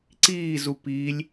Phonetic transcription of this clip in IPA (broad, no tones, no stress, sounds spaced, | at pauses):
ǀ iː z u p i lʲ